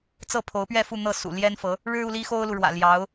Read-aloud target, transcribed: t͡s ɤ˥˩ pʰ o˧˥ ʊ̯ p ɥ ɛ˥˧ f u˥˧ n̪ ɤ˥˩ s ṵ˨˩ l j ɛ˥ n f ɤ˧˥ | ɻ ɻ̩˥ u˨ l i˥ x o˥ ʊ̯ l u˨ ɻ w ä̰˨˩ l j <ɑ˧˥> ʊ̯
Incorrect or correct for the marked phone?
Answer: correct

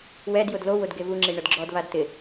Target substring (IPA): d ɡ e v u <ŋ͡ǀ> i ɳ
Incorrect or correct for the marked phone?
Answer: incorrect: ŋ͡ǁ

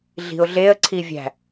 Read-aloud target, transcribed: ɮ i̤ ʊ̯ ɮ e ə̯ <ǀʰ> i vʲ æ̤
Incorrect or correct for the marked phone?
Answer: correct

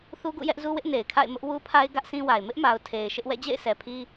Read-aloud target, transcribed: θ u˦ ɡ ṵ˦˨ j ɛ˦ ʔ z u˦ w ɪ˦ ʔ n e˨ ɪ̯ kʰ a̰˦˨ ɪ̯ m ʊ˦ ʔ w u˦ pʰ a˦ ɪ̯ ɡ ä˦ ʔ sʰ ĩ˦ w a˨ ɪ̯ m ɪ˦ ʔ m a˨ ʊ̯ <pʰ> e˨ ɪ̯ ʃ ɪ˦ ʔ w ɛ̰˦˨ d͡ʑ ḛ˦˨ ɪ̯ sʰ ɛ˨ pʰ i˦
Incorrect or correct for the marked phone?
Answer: incorrect: tʰ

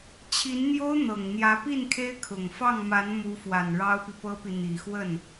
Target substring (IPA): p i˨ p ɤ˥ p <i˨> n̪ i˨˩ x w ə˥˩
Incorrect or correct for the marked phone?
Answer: correct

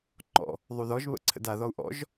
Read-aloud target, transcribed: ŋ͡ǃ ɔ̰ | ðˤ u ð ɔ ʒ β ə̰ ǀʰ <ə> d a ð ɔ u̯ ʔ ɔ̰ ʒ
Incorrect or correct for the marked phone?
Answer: incorrect: ə̰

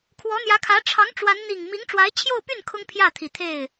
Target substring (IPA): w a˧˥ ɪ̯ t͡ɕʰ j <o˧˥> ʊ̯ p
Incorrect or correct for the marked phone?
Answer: incorrect: o˥˧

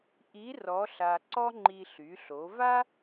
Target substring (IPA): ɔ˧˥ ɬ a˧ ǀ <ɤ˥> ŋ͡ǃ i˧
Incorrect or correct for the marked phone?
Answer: incorrect: ɔ˥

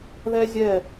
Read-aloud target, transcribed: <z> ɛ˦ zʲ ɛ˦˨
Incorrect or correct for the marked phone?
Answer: incorrect: ð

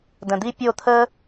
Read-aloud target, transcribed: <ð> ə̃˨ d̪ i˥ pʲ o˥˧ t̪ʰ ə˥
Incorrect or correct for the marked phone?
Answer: incorrect: d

